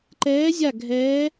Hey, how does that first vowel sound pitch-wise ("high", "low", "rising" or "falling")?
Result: rising